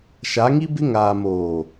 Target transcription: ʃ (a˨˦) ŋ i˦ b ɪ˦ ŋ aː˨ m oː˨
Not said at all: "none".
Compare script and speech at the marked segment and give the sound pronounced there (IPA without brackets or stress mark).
a˨˦